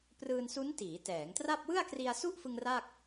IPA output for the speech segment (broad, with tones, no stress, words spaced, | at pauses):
prɯː˧nsu˦˥n tiː˩˦tɛː˩˦ŋtra˥˩p̚ wɯ˥˩a̯kri˧a̯su˥˩ʔfɯ˧ŋ ra˥˩k̚